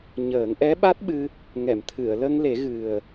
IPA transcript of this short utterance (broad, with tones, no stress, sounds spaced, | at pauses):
ɲ əː˨˩˦ ŋ ʔ ɛ˧˥ ɓ a˦˥ t̚ ɓ ɨ˧ | ŋ ɛ˨˩˨ m t̪ʰ ɨ˨˩˨ ə̯ l ə˧ ŋ l e˨˩˦ ɣ ɨ˨˩ ə̯